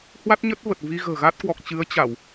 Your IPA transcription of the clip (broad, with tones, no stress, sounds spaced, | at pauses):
h w a˦˥ t̚ ɲ ə˦˥ t̚ v ə˨˩ t̚ v i˧ ɣ ə̤ː˨˩ ɣ a˦˥ t̚ k w ɔ˨˩ k̚ t͡ɕ ɨ˨˦ ə̯ t͡ɕ a˧˩˨ w